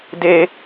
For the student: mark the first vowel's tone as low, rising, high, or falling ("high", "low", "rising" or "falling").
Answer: high